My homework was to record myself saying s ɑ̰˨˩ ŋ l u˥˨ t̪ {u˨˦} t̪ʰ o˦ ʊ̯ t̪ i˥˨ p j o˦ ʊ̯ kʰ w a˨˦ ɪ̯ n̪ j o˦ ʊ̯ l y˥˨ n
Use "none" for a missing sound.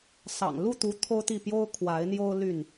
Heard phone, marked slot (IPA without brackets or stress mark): u˨˦